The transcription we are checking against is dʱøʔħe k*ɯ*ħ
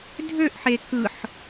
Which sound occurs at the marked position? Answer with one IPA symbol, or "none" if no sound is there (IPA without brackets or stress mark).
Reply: ɯ